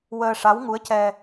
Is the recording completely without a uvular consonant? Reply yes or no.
yes